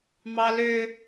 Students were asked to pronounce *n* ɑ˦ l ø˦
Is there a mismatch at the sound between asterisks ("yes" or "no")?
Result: yes